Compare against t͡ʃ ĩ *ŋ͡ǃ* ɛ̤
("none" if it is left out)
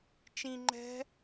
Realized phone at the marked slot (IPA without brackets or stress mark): ŋ͡ǃ